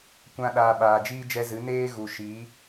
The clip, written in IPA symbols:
kʷ ã˧ ɗ aː˨ ɓ aː˨ d͡ʒ iː˦ d͡ʒ ɛ˧ z ɨ˨˦ n eː˦ ɣ u˨ ʃ iː˨˦

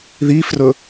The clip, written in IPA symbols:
ð i f r ɵ

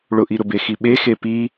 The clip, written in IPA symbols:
ɭ ʊ ʔ i ɾ ʊ b e x i ɓ e x e p i

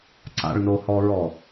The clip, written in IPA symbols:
ǀ a̰ ɭ n o h ɔ ɹ ɔ

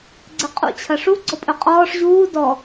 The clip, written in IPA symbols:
ɡ͡ǀ ɛ qʼ ṵ t͡ɕʰ ɐ ʂ u ɡ͡ǀ ɔ pʼ ɵ qʼ ɔː ʂ ʑ uː d ɔ

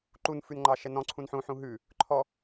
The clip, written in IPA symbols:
ǃ u n f ʉ n ŋ͡ǃ ɑ ʃ ɛ n ɔ̃ ǀʰ ũ n ħ ũ ħ ũ ɦ ʉ | ǃʰ ɔ

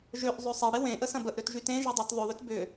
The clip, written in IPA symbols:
ʒ ø ʔ zˤ ø sˤ e ɽ e w ẽ ʔ ə s ɐ̃ b ə ʔ ɾ ø t ʒ y t ẽ ʒ e dˤ ø t ðˤ ʊ ð ʏ t b ʏ

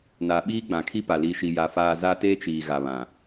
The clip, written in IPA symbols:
n a˨ ɓ iː˦ ɡ͡b ã˨ kʰ i˦ p a˨ l i˨ ʃ i˨ j a˨ f aː˨ z a˦ t eː˦ t͡ʃ iː˨ ɣ a˨ β ã˨

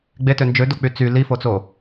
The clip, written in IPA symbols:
ɡ͡b e t ø n d͡ʒ ø d o k͡p y t͡s y l i f o t͡s o

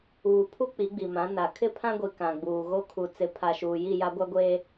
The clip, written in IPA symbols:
uː˨ pʰ u˦ k͡p i˨˦ ɡ͡b i˨ m ã˨˦ n a˨ kʰ ɪ˦ pʰ ã˦ ɡʷ i˨ k ã˨ ɡ͡b uː˨ ɣ o˦ kʰ u˨ t͡s ɪ˨˦ pʰ a˨ ʃ uː˨ j i˦˨ j a˦ ɡʷ a˦ ɡʷ eː˦

